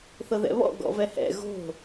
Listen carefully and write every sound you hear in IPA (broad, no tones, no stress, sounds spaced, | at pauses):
θ ɤ ð ɛ̰ β ɔ̰ ɡ ɔ̰ v ɛ h ɛ̰ ɣ o̤